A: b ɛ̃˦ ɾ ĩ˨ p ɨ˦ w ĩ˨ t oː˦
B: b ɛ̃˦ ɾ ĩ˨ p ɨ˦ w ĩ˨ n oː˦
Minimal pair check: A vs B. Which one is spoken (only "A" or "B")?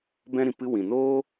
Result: B